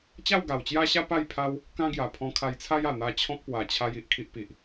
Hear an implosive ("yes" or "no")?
no